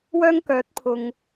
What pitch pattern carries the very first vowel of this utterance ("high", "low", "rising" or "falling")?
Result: high